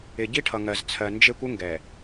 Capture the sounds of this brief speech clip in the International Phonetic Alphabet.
ɪ˨ ɟi˦ʈʰʌ˨ŋɜ˨zt͡sʰɜ˨ nd͡ʒe˦kʷɪ˦ŋɡɛ˨

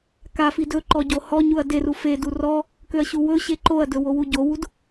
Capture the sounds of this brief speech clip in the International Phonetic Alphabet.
kafi dɵǃɔ ɟohɔɲuɐ̯ deru fedu rɔ | køɐ̯ɕuwɵɕe ǃoɐ̯dɵ wowuɟowud

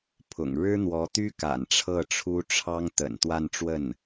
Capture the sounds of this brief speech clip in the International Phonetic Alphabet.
pʰʊ̰˨˩ŋ ɻɻ̩˥n̪wɔ˧˥t̪y˥ka̰˨˩n ʈ͡ʂʰɤ˥˩ʈ͡ʂʰu˥ʈ͡ʂʰɑ˥ŋ t̪ə̰˨˩n t̪wa˥˧nʈ͡ʂwə˥˩n

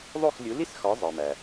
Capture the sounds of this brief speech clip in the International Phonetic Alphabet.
ðˤo˥˩xlʲu˩˥li˥sxɒ˩˥ zˤe˩mæ˩

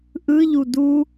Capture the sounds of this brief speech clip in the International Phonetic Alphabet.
ʔɯʎu du

